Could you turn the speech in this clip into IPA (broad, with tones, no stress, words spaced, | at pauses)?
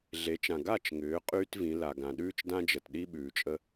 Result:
ɮe˩˧t͡ʃã˩ ɡa˥˨t͡ʃŋʏː˩˧ qʼyː˥tvĩ˩˧la˩ɡã˩ ɗʉː˥t͡ʃdã˥d͡ʒə˩t ɗi˥ɓʉː˩t͡ʃʼə˥